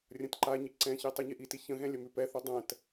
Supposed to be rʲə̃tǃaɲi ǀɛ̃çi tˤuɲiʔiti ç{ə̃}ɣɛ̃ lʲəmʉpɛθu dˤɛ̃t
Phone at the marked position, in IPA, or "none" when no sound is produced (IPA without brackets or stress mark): ə̃